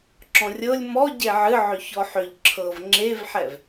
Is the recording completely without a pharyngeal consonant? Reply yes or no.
no